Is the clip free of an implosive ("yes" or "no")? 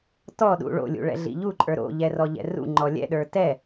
no